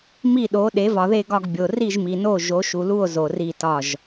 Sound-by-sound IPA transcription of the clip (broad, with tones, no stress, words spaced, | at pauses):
mi˥˩ɗo˩˥ ɗe˩˥vɒ˨ðe˥˩ɡɒ˥˩ɡ bʲo˨ ri˥˩ʒmi˨no˥˩ ʒo˩˥ʃu˨lu˥˩o̯ zo˨ri˥˩tɒ˥˩ʒ